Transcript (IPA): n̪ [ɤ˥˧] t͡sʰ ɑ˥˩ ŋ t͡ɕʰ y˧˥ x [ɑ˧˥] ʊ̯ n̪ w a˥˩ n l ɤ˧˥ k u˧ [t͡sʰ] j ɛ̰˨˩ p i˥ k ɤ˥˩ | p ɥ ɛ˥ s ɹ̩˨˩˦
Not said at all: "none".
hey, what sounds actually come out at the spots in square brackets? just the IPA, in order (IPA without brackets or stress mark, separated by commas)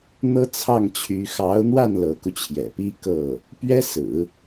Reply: ɤ˥, ɑ˧˥, t͡ɕʰ